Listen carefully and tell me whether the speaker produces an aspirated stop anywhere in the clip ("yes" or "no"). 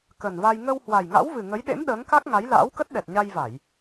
no